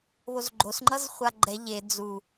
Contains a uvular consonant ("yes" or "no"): yes